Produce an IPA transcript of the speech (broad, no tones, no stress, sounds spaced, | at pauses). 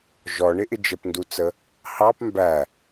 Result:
ʒ ɔ ɳ ɪ ʔ ɪ d͡ʒ ə p n d u t͡s ə | h ɑ p m b æ